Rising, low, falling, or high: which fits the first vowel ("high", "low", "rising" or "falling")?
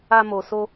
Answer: high